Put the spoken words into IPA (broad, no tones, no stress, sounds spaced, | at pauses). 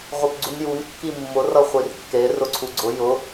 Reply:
ʁʷ i p ɡ͡ǀ u n j u n kː i mː ʊ r ʌ χʷ i r kː e r ʊ ǀʰ u ɡ͡ǀ ʊ j ʊ